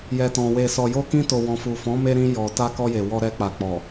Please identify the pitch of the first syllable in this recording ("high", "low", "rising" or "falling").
low